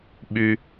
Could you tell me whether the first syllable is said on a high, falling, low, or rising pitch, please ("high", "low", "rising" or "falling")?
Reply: low